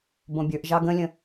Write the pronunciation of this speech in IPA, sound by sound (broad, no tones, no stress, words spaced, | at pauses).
bõbʲə˞ʔ ʒɑɡə̃lʲə̃